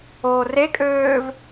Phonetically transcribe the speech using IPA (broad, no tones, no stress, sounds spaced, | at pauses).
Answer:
oː r e kʼ øː v